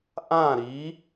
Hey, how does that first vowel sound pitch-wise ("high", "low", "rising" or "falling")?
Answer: falling